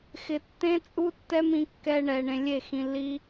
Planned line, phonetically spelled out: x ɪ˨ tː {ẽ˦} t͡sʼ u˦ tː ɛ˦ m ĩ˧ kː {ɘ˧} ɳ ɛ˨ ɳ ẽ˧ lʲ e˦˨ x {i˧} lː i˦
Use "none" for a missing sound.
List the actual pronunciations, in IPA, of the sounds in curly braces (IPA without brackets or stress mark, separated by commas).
ẽ˦, ɛ˧, ĩ˧